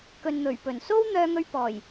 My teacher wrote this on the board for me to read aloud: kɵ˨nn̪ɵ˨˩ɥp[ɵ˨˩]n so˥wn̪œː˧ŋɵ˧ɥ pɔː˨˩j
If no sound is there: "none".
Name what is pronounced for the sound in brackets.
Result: ɵ˨˩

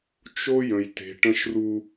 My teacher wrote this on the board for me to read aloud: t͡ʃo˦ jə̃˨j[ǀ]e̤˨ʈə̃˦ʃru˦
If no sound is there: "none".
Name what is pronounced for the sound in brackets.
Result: t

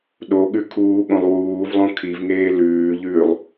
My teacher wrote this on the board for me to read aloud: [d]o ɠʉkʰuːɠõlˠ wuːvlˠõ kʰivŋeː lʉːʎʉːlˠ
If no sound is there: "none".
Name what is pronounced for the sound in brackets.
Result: ɗ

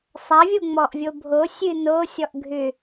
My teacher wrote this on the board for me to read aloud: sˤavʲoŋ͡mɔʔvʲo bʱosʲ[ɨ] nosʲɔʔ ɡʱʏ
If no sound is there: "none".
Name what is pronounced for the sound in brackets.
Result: ɨ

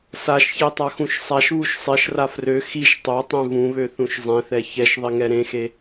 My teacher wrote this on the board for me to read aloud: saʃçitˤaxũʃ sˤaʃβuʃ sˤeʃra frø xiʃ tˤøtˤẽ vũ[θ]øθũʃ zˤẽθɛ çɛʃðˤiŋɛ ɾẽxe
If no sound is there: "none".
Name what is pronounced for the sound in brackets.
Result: β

